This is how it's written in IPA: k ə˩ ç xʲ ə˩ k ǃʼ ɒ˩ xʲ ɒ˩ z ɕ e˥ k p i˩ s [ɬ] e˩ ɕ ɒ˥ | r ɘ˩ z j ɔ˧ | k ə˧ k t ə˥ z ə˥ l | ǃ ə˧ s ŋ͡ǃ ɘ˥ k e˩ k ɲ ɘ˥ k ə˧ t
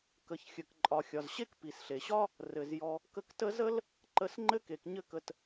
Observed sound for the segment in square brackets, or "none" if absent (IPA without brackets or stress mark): ɬ